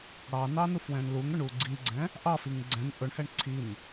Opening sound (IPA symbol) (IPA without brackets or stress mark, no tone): ɽ